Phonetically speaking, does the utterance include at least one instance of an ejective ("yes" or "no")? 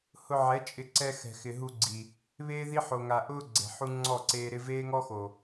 yes